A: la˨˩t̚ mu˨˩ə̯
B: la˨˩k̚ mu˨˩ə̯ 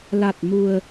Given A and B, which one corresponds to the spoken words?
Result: A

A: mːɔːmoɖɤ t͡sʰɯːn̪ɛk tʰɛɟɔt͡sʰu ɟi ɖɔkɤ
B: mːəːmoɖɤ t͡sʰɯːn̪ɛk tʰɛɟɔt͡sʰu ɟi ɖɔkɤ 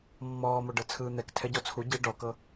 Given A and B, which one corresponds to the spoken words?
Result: A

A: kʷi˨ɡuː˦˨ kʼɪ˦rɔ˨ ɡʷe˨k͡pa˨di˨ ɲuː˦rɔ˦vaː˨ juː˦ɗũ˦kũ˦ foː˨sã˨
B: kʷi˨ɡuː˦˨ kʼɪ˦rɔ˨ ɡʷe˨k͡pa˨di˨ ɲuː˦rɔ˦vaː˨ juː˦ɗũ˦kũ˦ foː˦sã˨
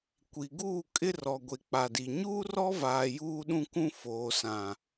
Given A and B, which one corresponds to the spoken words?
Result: A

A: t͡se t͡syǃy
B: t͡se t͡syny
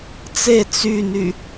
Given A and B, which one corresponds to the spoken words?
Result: B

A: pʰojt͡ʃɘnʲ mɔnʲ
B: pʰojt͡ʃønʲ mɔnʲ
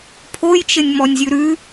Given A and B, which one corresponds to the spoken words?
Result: A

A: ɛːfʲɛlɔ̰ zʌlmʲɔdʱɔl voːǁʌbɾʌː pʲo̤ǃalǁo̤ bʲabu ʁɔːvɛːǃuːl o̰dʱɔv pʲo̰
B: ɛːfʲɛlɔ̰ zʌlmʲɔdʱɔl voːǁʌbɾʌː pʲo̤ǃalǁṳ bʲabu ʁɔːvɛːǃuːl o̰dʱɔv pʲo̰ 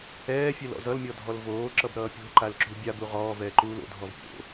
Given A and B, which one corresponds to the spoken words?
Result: B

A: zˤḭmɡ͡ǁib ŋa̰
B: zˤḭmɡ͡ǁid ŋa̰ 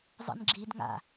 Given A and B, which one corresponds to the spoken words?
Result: B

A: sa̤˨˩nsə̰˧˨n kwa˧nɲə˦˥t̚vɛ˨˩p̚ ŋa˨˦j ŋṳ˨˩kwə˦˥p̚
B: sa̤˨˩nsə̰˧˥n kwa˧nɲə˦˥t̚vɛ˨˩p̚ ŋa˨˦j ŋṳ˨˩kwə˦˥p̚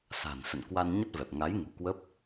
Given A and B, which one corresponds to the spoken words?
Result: A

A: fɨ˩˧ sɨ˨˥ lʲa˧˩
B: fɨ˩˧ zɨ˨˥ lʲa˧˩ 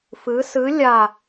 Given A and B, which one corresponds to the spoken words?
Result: A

